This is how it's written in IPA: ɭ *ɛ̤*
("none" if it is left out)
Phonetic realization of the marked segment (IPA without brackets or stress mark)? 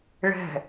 ɛ̤